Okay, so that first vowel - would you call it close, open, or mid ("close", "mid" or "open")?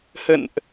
mid